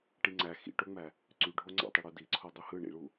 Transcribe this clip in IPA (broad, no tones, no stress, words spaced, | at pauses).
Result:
ʈiŋ͡ǀæ xḭʈoŋ͡mæ | ǀyɖʱoŋ͡ǀɑ̰tˤi ɽudiǀʰo dˤuhɯ ɳḭɭu